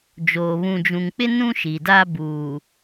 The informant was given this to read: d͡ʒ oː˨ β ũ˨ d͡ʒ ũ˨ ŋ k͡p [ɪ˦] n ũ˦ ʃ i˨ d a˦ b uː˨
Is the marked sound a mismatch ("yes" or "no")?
no